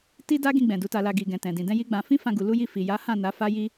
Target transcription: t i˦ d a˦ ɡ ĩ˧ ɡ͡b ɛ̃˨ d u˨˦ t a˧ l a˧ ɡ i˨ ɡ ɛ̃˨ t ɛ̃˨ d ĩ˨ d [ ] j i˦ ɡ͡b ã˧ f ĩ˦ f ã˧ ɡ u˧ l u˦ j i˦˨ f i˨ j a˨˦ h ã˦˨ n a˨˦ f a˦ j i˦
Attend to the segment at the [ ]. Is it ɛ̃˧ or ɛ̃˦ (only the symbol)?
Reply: ɛ̃˧